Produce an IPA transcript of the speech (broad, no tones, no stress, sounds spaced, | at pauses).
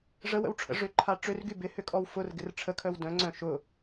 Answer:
ʐ ə w ə̰ w ʈ͡ʂʰ ə̰ ʐ ʏ ǃʰ a ʈ͡ʂ ø r ɡ y b ɪ h ʏ kʼ ɔ w f ʊ r ɡ ɪ r ʈ͡ʂʰ ə kʰ œ w d œ̃ ŋ͡ǀ œ̃ ʃ ʊ